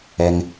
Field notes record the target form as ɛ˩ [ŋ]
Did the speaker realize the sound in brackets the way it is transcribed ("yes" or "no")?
yes